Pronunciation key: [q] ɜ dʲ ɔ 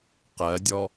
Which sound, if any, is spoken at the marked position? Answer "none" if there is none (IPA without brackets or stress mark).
q